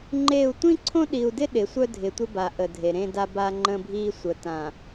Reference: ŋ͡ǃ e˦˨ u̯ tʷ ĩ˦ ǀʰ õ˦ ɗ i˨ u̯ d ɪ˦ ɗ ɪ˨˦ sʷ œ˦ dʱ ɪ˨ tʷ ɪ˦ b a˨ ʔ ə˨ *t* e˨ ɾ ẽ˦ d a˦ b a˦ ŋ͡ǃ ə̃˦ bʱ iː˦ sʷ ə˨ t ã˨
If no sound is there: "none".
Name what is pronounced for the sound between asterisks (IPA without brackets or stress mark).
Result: dʱ